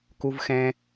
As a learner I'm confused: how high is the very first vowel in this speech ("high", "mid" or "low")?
high